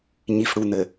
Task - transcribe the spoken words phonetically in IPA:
ɲ i˨ f ɽ u˨ n̪ ɘ˨

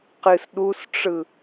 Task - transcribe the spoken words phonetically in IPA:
q ɨ s ɗ u s ʈ͡ʂ ɯ

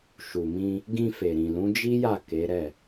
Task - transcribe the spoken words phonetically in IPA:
ʃ u˨ m ĩ˧ | ɡ ĩ˧ f e˨ ɾ ĩ˨ l ũ˨˦ d͡ʒ i˦ j a˦˨ k e˨˦ ɾ ɛ˦˨

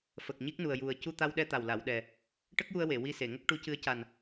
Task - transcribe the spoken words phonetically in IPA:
f ə˨˩ k̚ ɲ i˦˥ k̚ n u˨˩ ə̯ j u˨˩ ə̯ c u˧ t̪ a˧ w ɗ ɛ˧ t̪ a˨˩ w l a˨˩˨ w ɗ ɛ˨˩ | ʈ ə˦˥ k̚ j u˧ ə̯ w e˨˩˨ w i˧ s e˨˩˨ ŋ ə˦˥ k̚ ʈ u˧˥ c ɨ˧˥ ə̯ c a˨˩ n

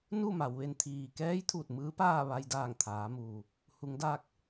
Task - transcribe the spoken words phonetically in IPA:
n u˥˨ m a˩ w ʋ e˧ n t̪ʰ iː˩ k ɛː˧˥ j t̪ʰ uː˧˩ t̚ m ɯː˧˥ p aː˥˨ ʋ a˧ j d aː˧˩ ŋ t̪ʰ aː˩˧ m uː˩ | h u˩˧ ŋ d aː˧ k̚

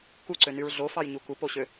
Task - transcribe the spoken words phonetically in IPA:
k u ǀ ø n y ɹ ɮ o f ɑ j ɲ u k u p o ɕ ø

